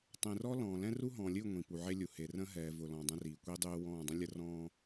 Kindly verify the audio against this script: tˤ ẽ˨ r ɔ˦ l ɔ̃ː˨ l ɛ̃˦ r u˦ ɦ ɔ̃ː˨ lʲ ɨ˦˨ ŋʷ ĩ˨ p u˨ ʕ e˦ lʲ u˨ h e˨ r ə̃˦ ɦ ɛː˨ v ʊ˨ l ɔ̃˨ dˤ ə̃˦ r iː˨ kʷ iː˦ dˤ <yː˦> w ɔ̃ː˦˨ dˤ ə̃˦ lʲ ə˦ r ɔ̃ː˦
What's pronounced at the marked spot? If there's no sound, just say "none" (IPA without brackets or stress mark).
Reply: yː˦